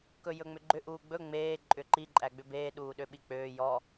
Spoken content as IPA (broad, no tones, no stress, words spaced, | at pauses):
kɵjɵŋ͡mʏɡ͡ǃʏ ʔuːɡ͡bɵ ŋ͡meː ǃʼʏǃi ǃʼæɡ͡bʏbeː ɗuːɗøɓik͡pøː jɔ